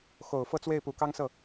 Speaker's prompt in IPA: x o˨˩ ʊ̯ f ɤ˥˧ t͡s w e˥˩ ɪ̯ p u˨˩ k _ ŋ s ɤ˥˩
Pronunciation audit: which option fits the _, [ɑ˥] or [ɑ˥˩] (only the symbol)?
ɑ˥